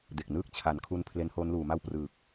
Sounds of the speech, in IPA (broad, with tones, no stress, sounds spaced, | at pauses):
d e˨˩ k̚ n ɯː˥˩ k̚ t͡ɕʰ a˩˦ n kʰ u˧ n pʰ l e˦˥ n h oː˦˥ n l uː˩˦ m a˥˩ w p r ɯː˨˩ k̚